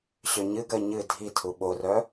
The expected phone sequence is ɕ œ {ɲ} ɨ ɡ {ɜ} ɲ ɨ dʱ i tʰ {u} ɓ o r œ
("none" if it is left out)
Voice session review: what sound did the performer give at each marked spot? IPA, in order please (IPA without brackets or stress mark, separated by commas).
ɲ, ɜ, u